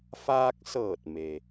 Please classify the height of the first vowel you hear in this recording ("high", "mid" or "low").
low